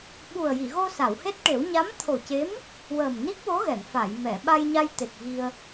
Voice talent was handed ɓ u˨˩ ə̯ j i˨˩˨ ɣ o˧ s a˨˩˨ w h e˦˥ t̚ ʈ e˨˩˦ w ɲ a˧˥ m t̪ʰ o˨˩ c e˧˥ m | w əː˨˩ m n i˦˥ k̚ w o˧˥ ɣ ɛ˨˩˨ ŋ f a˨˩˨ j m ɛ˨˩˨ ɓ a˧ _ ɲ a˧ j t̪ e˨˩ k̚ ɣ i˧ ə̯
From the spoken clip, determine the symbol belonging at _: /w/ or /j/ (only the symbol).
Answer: j